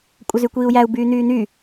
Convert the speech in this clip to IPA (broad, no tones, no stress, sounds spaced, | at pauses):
kʷʼ ə z y kʷ iː u̯ j æ u̯ b yː n̪ yː n̪ y